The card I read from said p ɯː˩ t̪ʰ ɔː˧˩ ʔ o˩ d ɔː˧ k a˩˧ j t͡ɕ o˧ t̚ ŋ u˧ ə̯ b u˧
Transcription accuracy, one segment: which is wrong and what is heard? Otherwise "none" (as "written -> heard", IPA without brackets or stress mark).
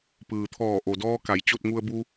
none